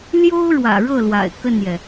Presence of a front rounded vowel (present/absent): absent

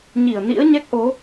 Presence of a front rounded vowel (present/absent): absent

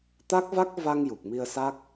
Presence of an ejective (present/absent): absent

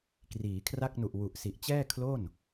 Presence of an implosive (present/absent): absent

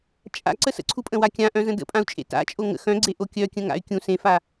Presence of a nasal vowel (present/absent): present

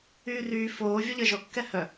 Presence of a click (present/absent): absent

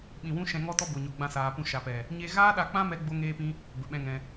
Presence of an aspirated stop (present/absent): absent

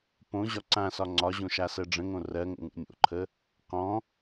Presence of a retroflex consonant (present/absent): present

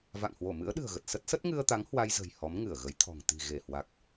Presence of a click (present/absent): absent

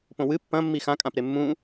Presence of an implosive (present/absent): absent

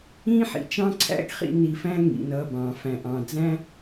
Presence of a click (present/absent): present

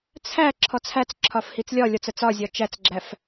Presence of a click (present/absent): present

